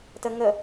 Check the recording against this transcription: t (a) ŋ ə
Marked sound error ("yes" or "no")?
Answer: yes